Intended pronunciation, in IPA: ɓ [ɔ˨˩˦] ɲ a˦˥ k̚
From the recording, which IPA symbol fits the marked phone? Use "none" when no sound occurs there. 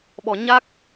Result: ɔ˨˩˦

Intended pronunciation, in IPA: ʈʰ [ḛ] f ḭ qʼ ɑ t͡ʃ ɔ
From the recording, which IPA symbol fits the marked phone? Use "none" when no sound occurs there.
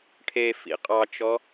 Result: e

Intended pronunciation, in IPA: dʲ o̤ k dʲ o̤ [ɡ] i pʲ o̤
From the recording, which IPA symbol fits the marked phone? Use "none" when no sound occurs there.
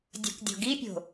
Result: ɡ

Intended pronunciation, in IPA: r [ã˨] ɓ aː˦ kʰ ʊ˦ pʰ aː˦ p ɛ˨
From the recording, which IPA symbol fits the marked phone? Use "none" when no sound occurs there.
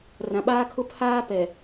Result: ã˨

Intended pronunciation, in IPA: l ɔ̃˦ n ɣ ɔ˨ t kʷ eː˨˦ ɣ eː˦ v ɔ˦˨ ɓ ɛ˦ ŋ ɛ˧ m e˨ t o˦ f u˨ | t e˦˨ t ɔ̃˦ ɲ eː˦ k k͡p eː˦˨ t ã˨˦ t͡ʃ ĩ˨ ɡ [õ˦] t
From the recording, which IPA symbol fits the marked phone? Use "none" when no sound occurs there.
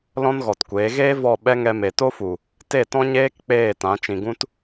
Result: ũ˦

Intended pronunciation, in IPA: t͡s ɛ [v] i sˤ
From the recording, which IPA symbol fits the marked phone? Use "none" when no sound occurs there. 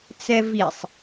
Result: v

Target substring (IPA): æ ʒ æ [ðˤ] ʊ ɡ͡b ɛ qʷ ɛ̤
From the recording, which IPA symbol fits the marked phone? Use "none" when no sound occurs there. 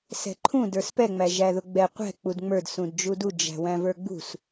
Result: ð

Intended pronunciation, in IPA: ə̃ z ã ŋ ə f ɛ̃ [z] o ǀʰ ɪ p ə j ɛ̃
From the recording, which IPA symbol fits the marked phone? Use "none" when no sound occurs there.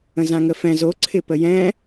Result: z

